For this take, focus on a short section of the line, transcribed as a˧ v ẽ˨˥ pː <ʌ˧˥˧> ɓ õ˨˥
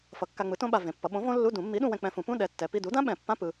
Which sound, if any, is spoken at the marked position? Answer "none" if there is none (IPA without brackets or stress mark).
ʌ˨˥